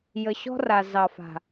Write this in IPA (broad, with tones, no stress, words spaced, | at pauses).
jə˨ɕɔ̤˦ra˨ zɑ˨fa̤˨